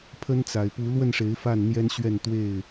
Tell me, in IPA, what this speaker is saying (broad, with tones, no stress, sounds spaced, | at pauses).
pʰ ə˦ n t͡s a˨˩ ɪ̯ p u˨˦ l w ə˥˨ n ʂ e˨˦ ɪ̯ f a˥˨ n n̪ j ɛ˦ n ɕ ɥ ɛ˥˨ n t̪ w e˥˨ ɪ̯